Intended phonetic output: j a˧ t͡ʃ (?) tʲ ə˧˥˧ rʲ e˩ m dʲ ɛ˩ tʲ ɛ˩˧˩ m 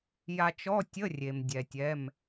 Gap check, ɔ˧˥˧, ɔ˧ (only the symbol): ɔ˧˥˧